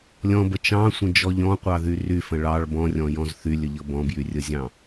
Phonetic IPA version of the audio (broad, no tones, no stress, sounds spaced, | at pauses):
lʲ ɔ̃ b ə t͡ʃ ɑ̃ sʷ ə̃ d͡ʒ ɔ ʎ ɔ̃ qʷ ɑ ð y r y f ə̃ ɭ ɑ ɭ b ɔ̃ rʲ ɔ̃ j ɔ̃ z θ y lʲ ə ʎ ɤ b ɔ̃ b j y rʲ ə zʲ ɑ̃